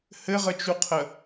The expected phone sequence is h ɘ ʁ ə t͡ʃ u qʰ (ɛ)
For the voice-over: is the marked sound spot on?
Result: no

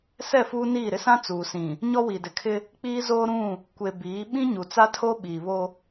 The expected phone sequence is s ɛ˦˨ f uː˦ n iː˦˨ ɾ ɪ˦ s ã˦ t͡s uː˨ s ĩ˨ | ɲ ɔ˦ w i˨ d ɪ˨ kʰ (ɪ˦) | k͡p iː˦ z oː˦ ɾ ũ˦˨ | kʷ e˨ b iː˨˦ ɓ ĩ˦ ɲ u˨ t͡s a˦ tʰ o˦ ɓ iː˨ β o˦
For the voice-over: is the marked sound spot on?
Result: yes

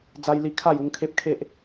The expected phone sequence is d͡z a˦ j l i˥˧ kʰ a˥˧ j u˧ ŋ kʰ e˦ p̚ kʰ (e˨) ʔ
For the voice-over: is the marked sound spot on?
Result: no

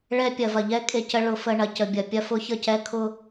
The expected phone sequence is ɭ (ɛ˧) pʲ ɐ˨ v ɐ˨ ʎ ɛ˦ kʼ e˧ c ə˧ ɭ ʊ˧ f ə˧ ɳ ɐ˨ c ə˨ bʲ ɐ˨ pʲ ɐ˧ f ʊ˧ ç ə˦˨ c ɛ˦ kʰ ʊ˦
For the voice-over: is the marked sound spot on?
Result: yes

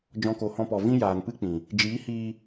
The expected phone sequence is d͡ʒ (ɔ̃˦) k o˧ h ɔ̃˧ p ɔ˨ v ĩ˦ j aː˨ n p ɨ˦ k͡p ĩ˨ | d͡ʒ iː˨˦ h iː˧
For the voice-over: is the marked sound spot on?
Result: yes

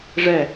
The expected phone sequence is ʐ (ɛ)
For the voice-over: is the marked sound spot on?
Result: yes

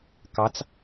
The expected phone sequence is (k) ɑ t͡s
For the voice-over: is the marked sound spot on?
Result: yes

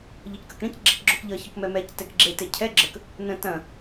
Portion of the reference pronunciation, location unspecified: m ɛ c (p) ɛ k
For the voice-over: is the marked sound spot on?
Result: no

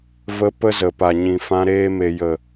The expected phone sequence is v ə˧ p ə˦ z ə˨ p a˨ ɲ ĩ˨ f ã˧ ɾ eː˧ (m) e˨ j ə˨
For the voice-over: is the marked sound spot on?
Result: yes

